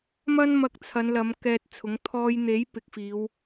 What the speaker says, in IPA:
m ɐ˥ n m ɐ˧ k̚ t͡sʰ ɐ˨˧ n l ɐ˨˧ m k ɛː˧ t̚ t͡sʰ ʊ˨˥ ŋ t̪ʰ ɔː˧ j n̪ e˨˥ j p ɪ˨ k̚ f iː˨˧ w

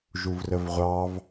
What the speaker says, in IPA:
ʒ u v r ə v ʁʷ ɑ v

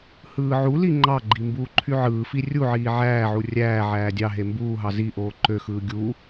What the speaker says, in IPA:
h ɯː ʕ u l i ŋ͡ǃ ɑ ɡ͡ǃ i m b uː ǃʰ y ʕ ɯː f i rʲ u ʕ iː ʕ æː ʕ u rʲ æː ʕ æː dʲ ɑ ɦ e m b uː ɦ ɑ z i ʔ oː ǃ ø x ɯː ɡʲ u

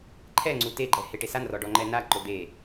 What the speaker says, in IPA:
ǃʰ ɛ ŋ͡ǀ u t e ɡ͡ǃ ɛ h e ʈ e s a n r ɔ ɖ ɔ ŋ͡ǃ ɛ n a ǃ ʊ d̪ e

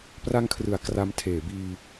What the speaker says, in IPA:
p r a˧ ŋ kʰ r ɯ˩˦ a̯ k r a˧ m tʰ eː˩˦ b iː˧

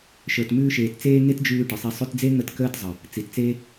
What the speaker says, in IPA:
ʃ ə˞˨ t m ʉː˧ ʃ eː˨ t t͡s eː˧ ŋ e˦ t d͡ʒ ʉː˧ ʈ ə˨ sˤ e˧ sˤ ʉ˧ t d͡z e˦ ŋ ə˦˨ t k əː˦ t zˤ ə˨ | t͡s i˨ t t͡s e˦

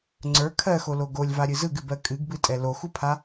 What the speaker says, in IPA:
ŋ͡ǀ ə˞ kʰ ɜ x o l o ɡ o lʲ v a ɾʲ ɨ z ɯ ɡ ɨ b ɜ kʼ ɨ ɡ b ɨ tʼ ɛ l o x u pʰ a

